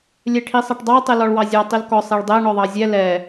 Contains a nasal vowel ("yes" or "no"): no